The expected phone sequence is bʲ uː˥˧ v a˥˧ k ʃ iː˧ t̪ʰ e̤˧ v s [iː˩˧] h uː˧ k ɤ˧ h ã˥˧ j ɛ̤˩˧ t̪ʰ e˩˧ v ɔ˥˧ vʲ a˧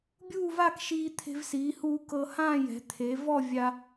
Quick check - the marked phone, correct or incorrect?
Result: correct